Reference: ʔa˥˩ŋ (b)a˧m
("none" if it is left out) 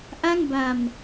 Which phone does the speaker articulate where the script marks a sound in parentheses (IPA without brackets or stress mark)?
b